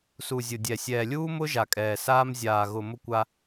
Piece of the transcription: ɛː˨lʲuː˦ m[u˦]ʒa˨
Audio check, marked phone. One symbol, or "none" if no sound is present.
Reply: ʊ˦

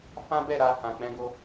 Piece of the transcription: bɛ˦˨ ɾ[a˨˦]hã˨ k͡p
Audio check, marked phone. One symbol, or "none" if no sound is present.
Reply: a˧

